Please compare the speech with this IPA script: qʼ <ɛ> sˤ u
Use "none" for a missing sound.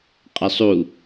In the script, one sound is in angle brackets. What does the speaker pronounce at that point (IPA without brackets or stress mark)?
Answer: ɛ